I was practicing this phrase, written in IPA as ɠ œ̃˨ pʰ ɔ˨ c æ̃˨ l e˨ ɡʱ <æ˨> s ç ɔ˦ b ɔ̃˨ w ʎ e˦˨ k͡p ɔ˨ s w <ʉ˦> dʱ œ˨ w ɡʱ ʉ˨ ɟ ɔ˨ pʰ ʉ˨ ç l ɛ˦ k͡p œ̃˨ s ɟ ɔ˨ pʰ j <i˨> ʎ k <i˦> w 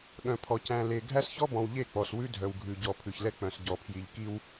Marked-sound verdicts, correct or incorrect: incorrect: æ˦, correct, correct, correct

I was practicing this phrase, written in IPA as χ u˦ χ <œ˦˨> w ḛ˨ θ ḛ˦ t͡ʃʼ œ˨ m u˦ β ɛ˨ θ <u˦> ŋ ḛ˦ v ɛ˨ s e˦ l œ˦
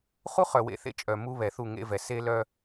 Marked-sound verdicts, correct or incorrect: incorrect: œ˨, incorrect: u˦˨

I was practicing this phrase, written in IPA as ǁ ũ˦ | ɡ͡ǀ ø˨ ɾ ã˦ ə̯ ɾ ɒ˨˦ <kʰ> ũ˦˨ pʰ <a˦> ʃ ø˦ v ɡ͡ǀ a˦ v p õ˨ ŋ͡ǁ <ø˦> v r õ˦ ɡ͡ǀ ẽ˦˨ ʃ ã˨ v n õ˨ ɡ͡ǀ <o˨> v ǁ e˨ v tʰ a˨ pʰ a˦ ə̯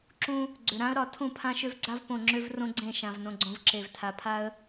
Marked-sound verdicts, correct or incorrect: incorrect: tʰ, incorrect: ã˦, correct, incorrect: õ˨

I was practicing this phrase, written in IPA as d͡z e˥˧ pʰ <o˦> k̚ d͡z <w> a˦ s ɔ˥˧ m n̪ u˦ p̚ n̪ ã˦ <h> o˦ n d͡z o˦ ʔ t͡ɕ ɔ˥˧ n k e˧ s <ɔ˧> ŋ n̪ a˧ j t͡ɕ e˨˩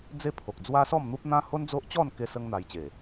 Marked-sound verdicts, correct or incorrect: incorrect: o˨, correct, correct, incorrect: ə˧

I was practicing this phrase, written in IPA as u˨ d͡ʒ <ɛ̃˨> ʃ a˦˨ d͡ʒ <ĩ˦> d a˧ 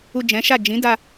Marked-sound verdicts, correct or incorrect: incorrect: ɛ̃˨˦, incorrect: ĩ˨˦

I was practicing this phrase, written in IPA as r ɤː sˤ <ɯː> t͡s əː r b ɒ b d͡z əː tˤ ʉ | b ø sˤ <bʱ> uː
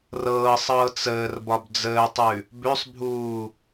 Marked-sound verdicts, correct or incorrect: incorrect: ɤː, correct

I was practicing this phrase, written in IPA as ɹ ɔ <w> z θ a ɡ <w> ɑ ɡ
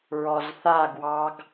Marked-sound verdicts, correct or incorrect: incorrect: none, correct

